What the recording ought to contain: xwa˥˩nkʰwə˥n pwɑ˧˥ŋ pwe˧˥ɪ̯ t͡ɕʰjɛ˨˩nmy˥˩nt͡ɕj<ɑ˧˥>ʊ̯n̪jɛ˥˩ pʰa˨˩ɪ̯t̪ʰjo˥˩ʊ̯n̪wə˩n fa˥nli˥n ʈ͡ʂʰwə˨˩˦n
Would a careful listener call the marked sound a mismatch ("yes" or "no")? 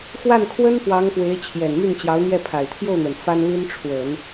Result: no